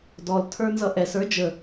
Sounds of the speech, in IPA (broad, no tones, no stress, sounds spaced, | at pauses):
d ɔ l tʰ ə˞ n z ʌ ʔ ɛ s ə˞ d͡ʒ ə